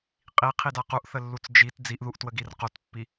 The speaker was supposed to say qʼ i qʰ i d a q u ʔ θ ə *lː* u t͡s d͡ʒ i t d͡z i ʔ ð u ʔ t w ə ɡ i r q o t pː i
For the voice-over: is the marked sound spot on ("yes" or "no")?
yes